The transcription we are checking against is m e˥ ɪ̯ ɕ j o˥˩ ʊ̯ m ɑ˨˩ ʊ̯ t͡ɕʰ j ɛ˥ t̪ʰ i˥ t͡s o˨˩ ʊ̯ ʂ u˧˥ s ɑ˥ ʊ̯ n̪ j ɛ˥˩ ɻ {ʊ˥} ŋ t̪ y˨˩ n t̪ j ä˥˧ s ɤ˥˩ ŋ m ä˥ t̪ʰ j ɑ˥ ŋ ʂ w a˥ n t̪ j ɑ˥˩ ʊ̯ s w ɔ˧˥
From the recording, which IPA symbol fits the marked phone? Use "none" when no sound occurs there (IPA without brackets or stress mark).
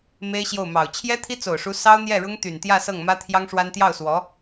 ʊ˥